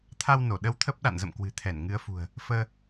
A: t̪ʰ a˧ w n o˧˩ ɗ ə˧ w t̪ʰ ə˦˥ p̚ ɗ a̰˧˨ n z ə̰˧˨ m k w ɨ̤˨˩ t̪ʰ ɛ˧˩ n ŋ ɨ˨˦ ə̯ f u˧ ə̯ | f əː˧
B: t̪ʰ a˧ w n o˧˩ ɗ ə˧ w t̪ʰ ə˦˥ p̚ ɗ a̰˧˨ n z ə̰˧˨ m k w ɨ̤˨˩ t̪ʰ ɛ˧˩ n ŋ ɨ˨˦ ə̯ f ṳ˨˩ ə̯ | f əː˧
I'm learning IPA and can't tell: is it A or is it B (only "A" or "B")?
B